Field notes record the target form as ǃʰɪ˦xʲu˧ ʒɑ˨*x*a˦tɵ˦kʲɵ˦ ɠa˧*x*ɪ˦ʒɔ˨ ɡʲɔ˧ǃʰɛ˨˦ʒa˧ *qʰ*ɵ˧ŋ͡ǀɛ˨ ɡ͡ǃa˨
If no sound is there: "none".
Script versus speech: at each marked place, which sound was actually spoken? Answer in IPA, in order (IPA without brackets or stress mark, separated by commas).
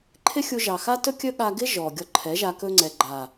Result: x, ɡ, k